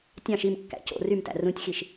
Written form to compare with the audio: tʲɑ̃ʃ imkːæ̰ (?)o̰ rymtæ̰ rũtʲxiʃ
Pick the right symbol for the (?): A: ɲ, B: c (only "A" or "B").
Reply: B